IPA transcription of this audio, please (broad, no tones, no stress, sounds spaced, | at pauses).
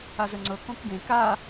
a z ə ŋ͡ǀ ɤ k õ k ɡ ẽ k a